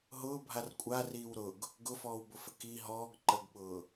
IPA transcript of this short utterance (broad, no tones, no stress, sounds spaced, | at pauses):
ɦ ʊː bʱ a r kʷʼ a r iː w ɾ ʊ ɡ | ɡ ʊ f ɔː w b ʊ f ə k i ɦ ɔː ɡ ǃ ə ɡ ɓ ʊː